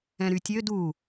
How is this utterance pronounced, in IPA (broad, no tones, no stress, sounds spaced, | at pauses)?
ɛ̃ ɾ y tʲ ø d u